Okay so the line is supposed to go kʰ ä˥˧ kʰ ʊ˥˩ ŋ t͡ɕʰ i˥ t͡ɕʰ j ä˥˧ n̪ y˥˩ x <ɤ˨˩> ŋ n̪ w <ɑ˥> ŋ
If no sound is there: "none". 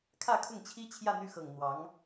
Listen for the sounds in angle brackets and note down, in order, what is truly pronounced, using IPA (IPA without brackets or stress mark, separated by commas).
ɤ˨˩, ɑ˧˥